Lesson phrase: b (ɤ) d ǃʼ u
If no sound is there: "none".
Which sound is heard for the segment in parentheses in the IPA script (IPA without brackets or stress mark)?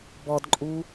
ɔ